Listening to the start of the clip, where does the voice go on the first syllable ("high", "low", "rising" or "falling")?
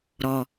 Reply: low